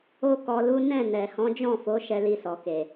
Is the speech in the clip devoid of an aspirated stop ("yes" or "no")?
yes